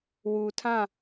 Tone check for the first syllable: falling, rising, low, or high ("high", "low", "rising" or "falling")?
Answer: low